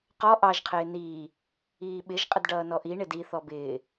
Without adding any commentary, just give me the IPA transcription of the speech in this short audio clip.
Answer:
qɔ ʔɑʒqʰɪː niː | iːɓɪʒ qʼədɖʌːnɔʔi ɳɪdi θɔbɪː

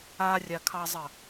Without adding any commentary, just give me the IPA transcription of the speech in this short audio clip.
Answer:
arʲakʰɑzˤə

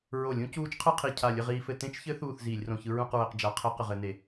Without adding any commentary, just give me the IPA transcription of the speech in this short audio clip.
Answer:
ɹo˧˩˧lʲ ũ˦˥cuː˦˥t͡ʃqʰɯ˥˧qʰi˧˩ cʰa˧˩lʲɘ˥˧ʁiː˧fɘ˧ tẽ˦˥t͡ʃçɘ˦˥ θuː˥˧θziː˧˩˧lʲrõ˧çɯ˦˥ ɹũ˥˧qɹɘ˧q d͡ʒa˦˥ qʰɘ˦˥ qɘ˧ʁɘ˦˥ne˧˩˧

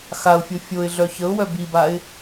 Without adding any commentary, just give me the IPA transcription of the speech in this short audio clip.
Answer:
xaʊ̯fʲo fʲoɪ̯ɮœ çəʊ̯wœ bibaɪ̯

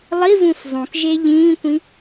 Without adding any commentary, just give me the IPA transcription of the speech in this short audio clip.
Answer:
lˠivũs zˤũkʒe ʎĩːkʷĩ

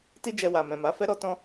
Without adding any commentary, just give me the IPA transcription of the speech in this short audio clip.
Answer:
ti˦d͡ʒɛ˧wa˨ mɛ̃˨ma˨˦ fɛ˦ɾɔ˦ tɔ̃˧

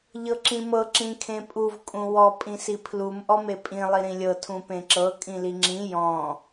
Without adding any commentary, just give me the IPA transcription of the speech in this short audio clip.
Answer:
ʎɤǁĩmɤ ǁĩkʰẽpʼuv kʼũwɔ pʼĩsipʰlum ʔɔmepʼĩ lˠiɾĩlʲɤ tʰũpẽǁɤ kʼĩliŋ͡ǁĩ jɔ̃

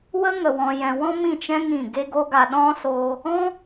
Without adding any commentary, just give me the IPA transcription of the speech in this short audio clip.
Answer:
wə˦ŋə˨ wɔ̃˧jɛ̃˧ wɔ̃˦mĩ˦˨t͡ʃɛ̃˦ ŋĩ˦˨ ɡe˧ɡo˧ɡa˨ ɗɔ̃˦soː˧ | ɔ̃˦

